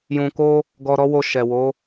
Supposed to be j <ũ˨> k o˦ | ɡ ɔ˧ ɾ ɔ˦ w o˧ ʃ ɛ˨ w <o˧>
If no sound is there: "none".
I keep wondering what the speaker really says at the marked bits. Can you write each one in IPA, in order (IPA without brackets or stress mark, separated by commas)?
ũ˧, o˨˦